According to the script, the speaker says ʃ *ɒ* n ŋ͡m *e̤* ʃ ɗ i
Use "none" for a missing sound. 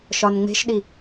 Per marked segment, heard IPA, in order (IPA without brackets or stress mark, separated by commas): ɒ, e̤